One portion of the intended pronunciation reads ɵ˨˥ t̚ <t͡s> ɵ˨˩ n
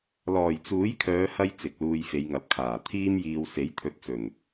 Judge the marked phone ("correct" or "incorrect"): correct